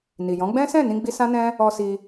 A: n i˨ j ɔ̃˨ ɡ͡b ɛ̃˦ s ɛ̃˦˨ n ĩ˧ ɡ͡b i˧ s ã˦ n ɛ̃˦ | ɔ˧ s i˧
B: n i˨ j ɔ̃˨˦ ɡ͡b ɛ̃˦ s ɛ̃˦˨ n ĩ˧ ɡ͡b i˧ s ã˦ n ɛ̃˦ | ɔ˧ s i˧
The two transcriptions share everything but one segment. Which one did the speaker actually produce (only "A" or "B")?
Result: B